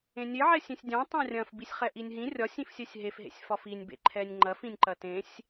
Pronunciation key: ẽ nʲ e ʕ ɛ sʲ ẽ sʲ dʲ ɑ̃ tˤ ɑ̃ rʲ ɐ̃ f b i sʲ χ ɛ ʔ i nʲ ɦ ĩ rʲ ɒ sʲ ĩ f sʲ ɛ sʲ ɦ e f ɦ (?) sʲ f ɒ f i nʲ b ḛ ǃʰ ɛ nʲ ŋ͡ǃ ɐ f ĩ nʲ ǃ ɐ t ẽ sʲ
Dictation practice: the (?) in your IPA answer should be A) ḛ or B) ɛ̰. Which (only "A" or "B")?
A